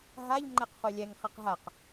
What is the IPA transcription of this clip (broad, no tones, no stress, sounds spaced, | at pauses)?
ɦ a ʎ ŋ͡ǃ ɛ q χ œ lʲ ɛ ŋ χ ɛ q ɦ a q